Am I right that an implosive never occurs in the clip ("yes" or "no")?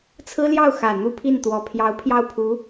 yes